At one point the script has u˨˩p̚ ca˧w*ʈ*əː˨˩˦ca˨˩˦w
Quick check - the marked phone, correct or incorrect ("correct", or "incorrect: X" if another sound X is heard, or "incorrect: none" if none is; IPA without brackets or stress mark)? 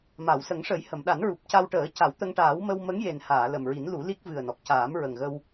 correct